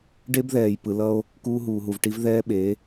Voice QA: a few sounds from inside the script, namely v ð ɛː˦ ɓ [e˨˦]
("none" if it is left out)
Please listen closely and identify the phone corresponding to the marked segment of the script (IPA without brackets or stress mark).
e˨˦